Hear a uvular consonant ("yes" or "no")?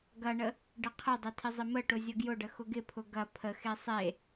yes